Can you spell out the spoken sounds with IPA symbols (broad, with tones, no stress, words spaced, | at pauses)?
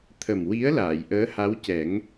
t̪ʰə˨˩mwi˧˥ə̯ laː˨˩˨jʔəː˧˥ha˧˥w cɛ˨˩˦ŋ